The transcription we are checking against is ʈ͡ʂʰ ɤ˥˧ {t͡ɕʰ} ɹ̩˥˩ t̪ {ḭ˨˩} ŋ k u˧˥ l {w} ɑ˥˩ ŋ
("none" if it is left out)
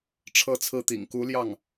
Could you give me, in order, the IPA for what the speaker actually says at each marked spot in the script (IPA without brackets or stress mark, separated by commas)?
t͡sʰ, ḭ˨˩, j